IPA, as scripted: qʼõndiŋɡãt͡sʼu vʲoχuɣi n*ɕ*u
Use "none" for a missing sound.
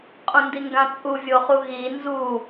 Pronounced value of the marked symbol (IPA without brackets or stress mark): z